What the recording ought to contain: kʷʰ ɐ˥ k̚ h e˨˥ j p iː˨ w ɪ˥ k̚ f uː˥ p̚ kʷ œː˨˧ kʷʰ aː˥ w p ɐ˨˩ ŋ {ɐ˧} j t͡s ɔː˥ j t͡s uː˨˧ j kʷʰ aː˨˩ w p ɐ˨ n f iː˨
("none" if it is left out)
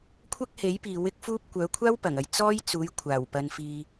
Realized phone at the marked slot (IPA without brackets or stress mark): ɐ˧